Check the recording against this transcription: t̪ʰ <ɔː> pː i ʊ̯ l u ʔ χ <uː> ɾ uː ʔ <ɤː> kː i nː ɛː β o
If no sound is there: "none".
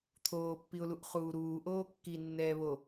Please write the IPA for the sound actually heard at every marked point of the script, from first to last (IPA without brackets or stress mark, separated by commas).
oː, uː, oː